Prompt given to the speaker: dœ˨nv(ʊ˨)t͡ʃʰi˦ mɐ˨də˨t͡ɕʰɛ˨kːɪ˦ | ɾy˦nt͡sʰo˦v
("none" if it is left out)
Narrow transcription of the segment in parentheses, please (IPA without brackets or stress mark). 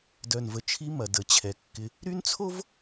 ə˨